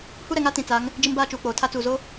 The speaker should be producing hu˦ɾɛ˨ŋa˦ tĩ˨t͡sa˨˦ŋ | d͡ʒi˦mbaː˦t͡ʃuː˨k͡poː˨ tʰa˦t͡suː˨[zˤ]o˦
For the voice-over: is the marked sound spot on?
no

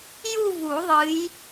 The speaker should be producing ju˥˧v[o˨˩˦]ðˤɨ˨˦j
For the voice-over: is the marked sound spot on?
no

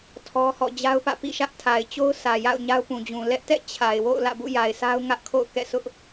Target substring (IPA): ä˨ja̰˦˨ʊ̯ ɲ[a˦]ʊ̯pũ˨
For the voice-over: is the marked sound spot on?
yes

